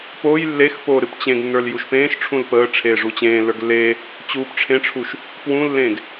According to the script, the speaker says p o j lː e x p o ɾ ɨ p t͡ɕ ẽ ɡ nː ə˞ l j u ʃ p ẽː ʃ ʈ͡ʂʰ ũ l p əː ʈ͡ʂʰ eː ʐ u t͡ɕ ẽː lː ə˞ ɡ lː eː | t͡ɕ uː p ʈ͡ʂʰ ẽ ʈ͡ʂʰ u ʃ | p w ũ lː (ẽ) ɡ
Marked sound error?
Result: yes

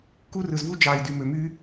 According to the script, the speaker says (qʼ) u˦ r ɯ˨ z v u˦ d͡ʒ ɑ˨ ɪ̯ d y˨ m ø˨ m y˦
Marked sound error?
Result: yes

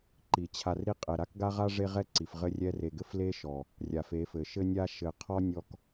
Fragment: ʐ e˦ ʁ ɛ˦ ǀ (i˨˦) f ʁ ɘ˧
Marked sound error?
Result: yes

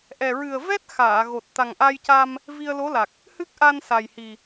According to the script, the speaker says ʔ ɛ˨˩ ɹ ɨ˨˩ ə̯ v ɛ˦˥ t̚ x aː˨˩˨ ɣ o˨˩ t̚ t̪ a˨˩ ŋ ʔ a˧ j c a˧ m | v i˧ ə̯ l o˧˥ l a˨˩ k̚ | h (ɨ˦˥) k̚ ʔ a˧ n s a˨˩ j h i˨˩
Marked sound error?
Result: no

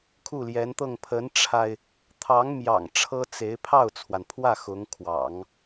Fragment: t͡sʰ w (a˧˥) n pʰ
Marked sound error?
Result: yes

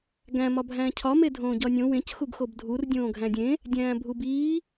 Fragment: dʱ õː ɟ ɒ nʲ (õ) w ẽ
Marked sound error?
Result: no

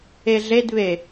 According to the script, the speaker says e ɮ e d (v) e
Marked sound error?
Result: yes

